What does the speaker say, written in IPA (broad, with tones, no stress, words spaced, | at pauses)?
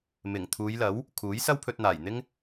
mɪ˨˩ŋ t̪ʰuː˨˧jlɐ˨˥w | kʰuː˨˥jsɐ˥wpʰɵ˧t̚n̪aː˨˩j n̪ɪ˥ŋ